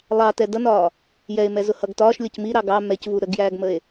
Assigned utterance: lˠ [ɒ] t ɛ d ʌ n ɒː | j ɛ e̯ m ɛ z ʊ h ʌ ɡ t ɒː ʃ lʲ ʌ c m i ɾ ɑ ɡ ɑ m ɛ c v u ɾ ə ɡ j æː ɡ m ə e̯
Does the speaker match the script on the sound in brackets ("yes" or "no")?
no